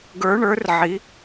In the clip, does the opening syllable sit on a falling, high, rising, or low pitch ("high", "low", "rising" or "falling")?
rising